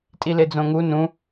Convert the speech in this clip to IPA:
tʼ i l e d͡z õ ŋ u n ũ

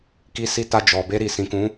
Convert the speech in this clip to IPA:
k i˧ s i˧ t a˧ d͡ʒ ɔ˨ b e˧ ɾ i˨ s ĩ˨ k ũ˨˦

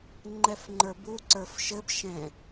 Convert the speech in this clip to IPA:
ŋ͡ǃ ɛ f ŋ͡ǃ ə˞ b u ǀ ə˞ f ʃ ɘ b ʃ ɛ̃

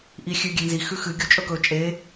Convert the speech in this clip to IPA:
ʔ i xʲ ʉ ɡʲ e n z i x ʉ x ɨ ɡʲ o t͡ʃʼ ɵ k ɵ t͡ʃʼ e

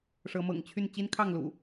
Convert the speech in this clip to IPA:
ʂ ɤ˨˦ m ɤ̰˨˩ ŋ t͡ɕʰ y˥˨ n t͡ɕ i˦ n kʰ ɑ˥˨ ŋ l ṵ˨˩

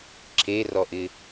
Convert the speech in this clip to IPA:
ǁʰ e r ɔ ʔ ɪ

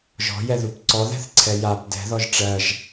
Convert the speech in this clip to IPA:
ʒ ɔ̤ j ɛ ð u p ǀ ɔ ð ɛ̤ θ ǀʰ ɛ j a p d ɛ̤ ð ɔ ʒ ʈ͡ʂ ɜ ʒ

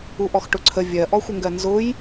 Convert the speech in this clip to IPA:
u ʔ ɔ x ʈ ʊ ǀʰ ə vʲ ɜ ʔ ɔ xʷ ɘ ŋ ɡ ɜ n z ʊ j

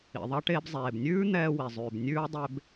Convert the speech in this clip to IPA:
ḭ˩ ðˤ ɑ˧ ʈ eː˧ b zˤ eː˩ b nʲ ʉː˥ n̪ ɛː˧ w i˩ zˤ ʉː˩ b nʲ ʉː˥ dˤ e˧ b

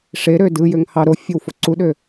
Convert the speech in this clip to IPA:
ʂ e ɾ ø d ɯ j ø ŋ h ɑ ɾ o fʲ e w f o ǀ u ɗ ø

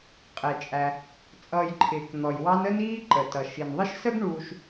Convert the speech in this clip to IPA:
qʼ ɛ˩ t͡ʃʼ æ˩ | t͡sʼ ʌː˨ j ǃʰ ɪː˩ k n̪ ɔ˩ j w ɑ˦ n ə˥ n iː˦ ǃ ə˩ t ʌ˩ ʃ i˩ n ðˤ ɪ˥ ʃ s ə˥ ɡ ɳ uː˨ ʃ

